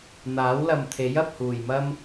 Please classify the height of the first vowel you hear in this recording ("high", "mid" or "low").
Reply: low